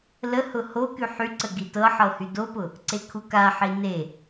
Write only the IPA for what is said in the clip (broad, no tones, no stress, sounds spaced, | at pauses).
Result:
l ə h ʊ h o k y ħ y ǀ ə ɡ i t ɤ ħ ɤ h y d o p ʊ | ǀ e kʰ u k a ħ i n e